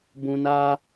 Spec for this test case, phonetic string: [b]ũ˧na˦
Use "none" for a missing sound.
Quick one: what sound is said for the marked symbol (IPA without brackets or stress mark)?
b